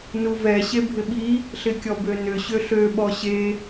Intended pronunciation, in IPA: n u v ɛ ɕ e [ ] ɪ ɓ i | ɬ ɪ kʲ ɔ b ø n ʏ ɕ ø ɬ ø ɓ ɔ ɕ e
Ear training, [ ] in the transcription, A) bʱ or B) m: A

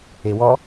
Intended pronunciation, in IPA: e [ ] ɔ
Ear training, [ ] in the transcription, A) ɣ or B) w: B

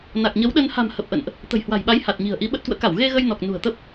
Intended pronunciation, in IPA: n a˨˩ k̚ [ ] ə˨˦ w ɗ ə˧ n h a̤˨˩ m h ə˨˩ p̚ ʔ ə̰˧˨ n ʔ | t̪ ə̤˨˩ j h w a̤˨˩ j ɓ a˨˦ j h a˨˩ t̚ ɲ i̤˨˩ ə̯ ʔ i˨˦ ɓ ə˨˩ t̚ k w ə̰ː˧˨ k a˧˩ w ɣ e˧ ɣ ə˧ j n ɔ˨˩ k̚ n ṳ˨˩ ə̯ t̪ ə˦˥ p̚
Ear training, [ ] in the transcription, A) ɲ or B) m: A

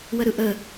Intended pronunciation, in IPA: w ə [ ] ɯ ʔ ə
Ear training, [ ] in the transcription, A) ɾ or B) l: A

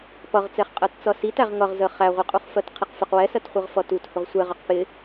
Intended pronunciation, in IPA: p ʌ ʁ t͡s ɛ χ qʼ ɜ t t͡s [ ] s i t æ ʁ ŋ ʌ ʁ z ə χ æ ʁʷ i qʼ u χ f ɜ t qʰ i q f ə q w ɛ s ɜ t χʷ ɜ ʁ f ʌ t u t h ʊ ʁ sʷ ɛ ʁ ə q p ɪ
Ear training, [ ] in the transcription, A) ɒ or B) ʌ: B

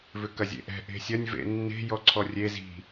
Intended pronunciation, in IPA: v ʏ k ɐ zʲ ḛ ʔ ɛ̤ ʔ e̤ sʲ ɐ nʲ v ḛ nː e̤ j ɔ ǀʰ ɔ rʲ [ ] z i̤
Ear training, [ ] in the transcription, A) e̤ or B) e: B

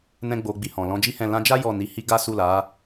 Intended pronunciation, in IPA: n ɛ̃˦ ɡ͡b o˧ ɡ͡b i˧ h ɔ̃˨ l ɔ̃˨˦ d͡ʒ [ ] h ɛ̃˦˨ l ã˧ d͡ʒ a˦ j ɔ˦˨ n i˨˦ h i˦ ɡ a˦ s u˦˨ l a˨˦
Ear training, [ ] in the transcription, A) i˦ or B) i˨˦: A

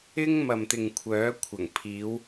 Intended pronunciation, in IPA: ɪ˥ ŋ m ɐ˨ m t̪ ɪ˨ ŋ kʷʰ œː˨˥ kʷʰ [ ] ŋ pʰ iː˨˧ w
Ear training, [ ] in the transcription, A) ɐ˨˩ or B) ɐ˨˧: A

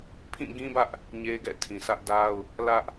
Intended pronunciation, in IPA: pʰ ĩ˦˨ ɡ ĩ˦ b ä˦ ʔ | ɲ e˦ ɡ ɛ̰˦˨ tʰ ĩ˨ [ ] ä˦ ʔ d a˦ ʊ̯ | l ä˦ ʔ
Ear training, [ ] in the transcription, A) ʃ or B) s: B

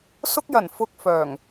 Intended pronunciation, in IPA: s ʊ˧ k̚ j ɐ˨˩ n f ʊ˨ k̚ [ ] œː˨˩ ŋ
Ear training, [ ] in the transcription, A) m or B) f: B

